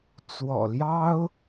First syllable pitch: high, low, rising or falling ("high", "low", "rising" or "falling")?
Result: low